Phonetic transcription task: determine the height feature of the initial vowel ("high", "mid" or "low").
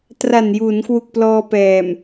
low